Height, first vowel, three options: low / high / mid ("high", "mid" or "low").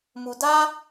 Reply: high